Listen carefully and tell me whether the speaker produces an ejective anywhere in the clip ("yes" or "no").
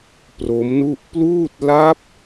no